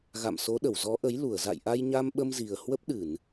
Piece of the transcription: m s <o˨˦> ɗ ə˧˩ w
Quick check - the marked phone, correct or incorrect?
correct